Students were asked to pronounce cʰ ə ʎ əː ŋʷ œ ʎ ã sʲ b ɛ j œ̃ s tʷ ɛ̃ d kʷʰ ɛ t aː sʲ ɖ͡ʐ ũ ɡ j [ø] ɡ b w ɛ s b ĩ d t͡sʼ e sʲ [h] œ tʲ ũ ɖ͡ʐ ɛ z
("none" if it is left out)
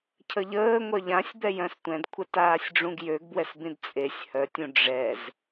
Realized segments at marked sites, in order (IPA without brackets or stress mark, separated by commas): ø, h